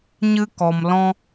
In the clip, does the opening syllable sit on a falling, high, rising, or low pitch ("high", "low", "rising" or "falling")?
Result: high